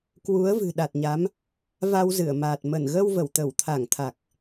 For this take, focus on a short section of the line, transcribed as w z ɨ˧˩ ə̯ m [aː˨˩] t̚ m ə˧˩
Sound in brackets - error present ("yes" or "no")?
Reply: no